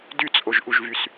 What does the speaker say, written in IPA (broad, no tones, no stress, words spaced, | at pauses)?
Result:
dyt͡sʼoʒʔuʒvys